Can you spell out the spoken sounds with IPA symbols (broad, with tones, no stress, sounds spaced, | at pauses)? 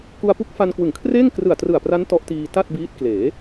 k u˧ a̯ p u˦˥ k̚ f a˧ n k w ɯ˨˩ ŋ kʰ r eː˥˩ ŋ k r ɯ˨˩ a̯ t r ɯ˨˩ a̯ p r a˦˥ n t ɔ˦˥ ʔ t iː˧ t a˥˩ t̚ b iː˦˥ t̚ k l eː˩˦